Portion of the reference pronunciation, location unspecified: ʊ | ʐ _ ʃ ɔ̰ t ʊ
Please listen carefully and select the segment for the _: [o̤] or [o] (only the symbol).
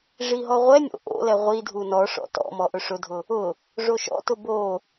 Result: o